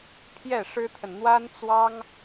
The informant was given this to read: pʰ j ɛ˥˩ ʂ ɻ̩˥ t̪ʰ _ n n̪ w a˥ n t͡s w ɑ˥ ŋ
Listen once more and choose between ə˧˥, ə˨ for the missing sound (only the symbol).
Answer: ə˨